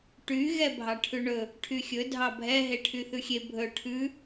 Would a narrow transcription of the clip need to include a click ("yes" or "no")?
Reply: no